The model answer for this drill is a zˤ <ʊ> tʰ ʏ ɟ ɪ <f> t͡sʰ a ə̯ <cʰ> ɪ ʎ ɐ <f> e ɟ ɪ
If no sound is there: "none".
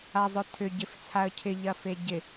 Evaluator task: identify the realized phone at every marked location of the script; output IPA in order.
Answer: ʊ, f, cʰ, f

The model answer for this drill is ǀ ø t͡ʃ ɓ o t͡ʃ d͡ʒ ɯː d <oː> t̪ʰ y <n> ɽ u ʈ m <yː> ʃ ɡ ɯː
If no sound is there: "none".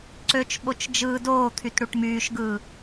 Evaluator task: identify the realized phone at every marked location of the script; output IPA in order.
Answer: oː, t, yː

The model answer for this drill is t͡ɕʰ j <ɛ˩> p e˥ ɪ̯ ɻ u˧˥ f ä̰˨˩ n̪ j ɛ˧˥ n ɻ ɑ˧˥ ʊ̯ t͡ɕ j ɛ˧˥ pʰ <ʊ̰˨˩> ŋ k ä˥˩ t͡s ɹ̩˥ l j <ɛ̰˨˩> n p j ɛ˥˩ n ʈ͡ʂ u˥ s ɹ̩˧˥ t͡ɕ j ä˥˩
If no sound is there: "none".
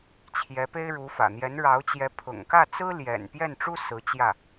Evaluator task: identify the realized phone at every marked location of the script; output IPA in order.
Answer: ɛ˧˥, ʊ̰˨˩, ɛ̰˨˩

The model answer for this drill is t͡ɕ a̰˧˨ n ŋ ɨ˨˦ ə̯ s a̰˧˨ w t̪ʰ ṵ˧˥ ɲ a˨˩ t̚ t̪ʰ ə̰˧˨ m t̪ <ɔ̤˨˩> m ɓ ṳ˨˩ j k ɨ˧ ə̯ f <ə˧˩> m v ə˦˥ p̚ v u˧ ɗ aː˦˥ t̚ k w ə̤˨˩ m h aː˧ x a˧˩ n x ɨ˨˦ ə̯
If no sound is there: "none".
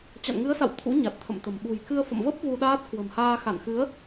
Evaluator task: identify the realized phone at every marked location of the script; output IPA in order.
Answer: ə̤˨˩, ə̰˧˨

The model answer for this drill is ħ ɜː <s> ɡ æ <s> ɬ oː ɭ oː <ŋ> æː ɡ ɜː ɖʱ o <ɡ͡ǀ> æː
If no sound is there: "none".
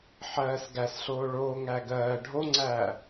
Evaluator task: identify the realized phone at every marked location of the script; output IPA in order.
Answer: s, s, ŋ, ŋ͡ǀ

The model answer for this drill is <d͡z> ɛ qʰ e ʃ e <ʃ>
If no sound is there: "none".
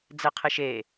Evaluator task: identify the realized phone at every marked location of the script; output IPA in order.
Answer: d͡z, none

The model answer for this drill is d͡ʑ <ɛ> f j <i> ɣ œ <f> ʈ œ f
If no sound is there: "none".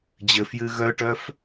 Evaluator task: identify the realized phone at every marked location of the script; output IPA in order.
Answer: ɘ, ɨ, none

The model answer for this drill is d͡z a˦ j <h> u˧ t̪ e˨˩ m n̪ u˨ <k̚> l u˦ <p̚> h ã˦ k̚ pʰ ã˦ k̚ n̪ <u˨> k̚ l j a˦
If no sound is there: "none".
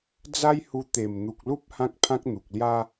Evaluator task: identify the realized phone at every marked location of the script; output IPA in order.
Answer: h, k̚, p̚, u˨

